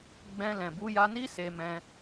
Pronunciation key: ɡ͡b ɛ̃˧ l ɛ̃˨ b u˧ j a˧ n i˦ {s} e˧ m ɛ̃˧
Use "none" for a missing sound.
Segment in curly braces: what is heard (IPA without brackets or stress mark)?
s